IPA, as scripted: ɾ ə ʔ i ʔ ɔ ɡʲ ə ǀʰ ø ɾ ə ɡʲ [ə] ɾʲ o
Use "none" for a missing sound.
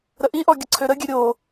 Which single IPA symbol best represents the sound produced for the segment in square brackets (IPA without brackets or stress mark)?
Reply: ø